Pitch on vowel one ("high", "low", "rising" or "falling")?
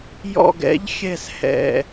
low